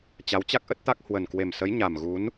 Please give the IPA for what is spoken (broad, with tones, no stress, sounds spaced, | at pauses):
t͡ɕ a˨˦ w t͡ɕ a˦˥ k̚ ʔ ə˦˥ t̚ t̪ a˦˥ k̚ h w ə˨˩ n k w e˨˩ m s ə˨˦ j ɲ a˨˩ m ɣ u˨˦ n